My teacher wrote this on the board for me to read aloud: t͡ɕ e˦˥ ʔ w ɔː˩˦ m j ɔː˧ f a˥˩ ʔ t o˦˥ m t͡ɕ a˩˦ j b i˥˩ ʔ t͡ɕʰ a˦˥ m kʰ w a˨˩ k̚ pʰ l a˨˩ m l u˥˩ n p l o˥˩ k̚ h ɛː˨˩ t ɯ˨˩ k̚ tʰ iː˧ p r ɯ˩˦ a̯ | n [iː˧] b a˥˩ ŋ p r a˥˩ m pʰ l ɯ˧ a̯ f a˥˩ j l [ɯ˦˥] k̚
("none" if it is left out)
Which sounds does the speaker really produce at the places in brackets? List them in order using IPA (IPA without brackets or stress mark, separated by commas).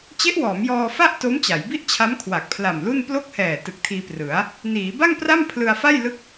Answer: iː˩˦, ɯ˦˥